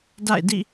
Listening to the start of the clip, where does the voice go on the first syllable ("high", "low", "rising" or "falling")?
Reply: falling